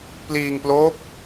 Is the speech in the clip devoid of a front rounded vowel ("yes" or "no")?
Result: yes